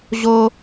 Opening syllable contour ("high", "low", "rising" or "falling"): high